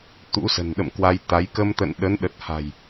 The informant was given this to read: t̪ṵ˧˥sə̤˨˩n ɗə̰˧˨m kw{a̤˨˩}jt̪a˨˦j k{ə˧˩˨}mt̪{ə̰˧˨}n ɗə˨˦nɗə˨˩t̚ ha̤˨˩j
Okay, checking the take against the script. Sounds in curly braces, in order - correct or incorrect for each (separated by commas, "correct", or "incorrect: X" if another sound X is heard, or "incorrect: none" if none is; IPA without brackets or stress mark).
incorrect: a˧, incorrect: ə˧, correct